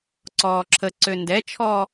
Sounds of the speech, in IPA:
ǀɔːǁʰə ǀøndɛt͡ʃʰɔː

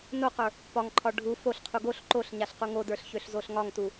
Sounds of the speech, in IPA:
noqə˞ | pɒŋǃʰɒ ɖʱu foɬqʰu ɡoɬ ǃoɬɲaɬ quŋodə˞ɬ çøɬzoɬŋɒŋtu

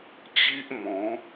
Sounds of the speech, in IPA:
t͡ɕi˦ʔmɔ̃˨˦

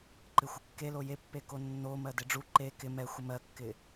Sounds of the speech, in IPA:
ǃɪxʷɪkːe lojepːeko nːo mɜdɪɖ͡ʐu ǃe kɪ mɛxʷɪ mɜkːɪ

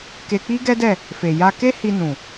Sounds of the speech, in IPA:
ke˧k͡pi˦ɡɛ˦dɛ˦˨ | fe˨ ja˧ke˦hi˧ nũ˨

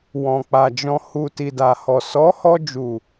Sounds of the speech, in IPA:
wɔ̃˨k͡pa˨ d͡ʒɔ̃˨hu˨ ti˨da˨hɔ˨ sɔ˨˦ hɔ˧d͡ʒu˨

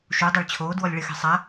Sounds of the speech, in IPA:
ʃudˤeɭ t͡ɕʰoːdwɔlʲ ɭɪxe̤ sˤa

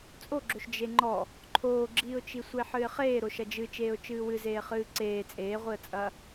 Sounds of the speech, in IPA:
t͡sʼoɡ͡ǁoʃ d͡ʒeŋ͡ǃɔ | ǃʰoːɡ͡ǁiːʊ̯t͡ʃi sʷeħɨɪ̯χeː ɾoʃɐd͡ʒɨ t͡ʃeːʊ̯t͡ʃɨːwɨzeː χɨːǀeː t͡sʼeːʁʷiə̯t͡sʼɐː

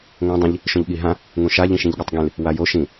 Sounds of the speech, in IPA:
ŋõ dˤĩʎ | ʃõʎɠiɦã | ŋũʃa ʎĩʃĩʎɠʌtˤɡĩl | wajo ʃĩ

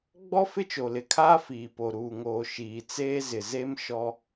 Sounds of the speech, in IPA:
ɡ͡bɔ˦ fɪ˦t͡ʃo˨lɪ˨kʰaː˦ fiː˨po˨ ɾuː˨ŋoː˨ ʃiː˨t͡seː˦zɪ˨ ze˦m ʃɔ˦

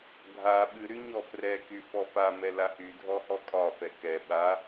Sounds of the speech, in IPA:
ɡʱa ɓɨɾy ɲɔfrɛky fɔfamɛ lahydʱɔ hɔkʼɒfɛ kɛ ɓa

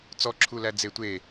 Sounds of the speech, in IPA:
t͡sɔǁʰulæ d͡zetʷe

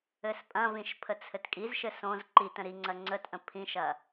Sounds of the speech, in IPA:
ɘspʼɐ̃vĩʃ pʰət͡sʰɘtkʼizʃɘ sõz ǃitə̃ ɾiŋ͡ǀɐ ŋ͡ǀətʔə̃ pʰĩʃɐ

